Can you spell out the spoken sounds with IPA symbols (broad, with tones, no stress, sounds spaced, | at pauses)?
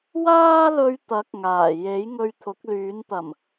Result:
w aː˥ l ɵ˧ ɥ t̪ ɐ˨˥ k̚ ŋ aː˨˩ j e˨˥ j ŋ ɵ˧ ɥ t̪ʰ ʊ˨˥ k̚ l yː˨˥ n t̪ ɐ˨˩ m